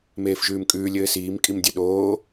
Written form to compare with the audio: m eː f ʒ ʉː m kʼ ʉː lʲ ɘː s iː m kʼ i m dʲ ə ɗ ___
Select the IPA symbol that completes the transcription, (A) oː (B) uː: A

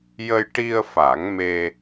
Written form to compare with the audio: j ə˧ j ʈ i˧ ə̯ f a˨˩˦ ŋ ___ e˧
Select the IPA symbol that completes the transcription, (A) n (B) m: B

